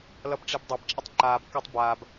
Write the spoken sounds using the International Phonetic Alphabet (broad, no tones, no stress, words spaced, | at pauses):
lʌbʈ͡ʂebdˤab t͡ʃʼʌtˤǃaːb katˤbaːb